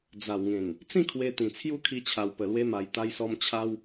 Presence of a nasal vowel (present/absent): present